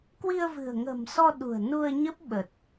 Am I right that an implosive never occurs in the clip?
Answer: no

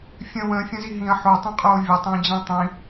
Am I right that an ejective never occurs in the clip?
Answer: no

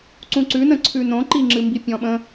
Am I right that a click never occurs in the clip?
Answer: no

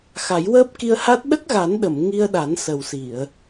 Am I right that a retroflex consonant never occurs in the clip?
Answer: yes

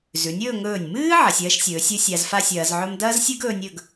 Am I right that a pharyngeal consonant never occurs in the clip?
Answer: no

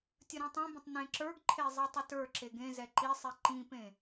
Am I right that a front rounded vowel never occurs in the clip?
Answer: yes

